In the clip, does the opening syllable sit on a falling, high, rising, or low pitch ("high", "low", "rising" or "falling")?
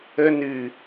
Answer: high